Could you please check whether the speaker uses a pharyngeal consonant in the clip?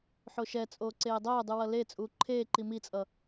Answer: yes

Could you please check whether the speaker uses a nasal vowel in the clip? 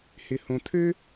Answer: yes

